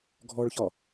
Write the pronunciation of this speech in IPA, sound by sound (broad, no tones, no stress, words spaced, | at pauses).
ɡʱɔɭçɒ